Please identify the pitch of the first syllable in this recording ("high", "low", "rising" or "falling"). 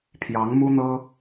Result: rising